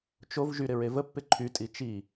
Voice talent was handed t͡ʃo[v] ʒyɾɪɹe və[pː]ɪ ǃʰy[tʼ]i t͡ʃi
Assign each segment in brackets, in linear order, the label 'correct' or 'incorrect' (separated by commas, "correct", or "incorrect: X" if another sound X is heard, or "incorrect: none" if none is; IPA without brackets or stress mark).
correct, correct, correct